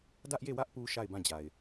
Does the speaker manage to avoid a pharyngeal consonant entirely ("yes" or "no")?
yes